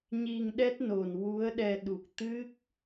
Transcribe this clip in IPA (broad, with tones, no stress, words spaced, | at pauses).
ɲi˧ŋɗɛ˦˥t̚ no˨˩n wu˧˥ə̯ɗɛ˧ ɗu˨˩k̚ t̪ɨ˦˥k̚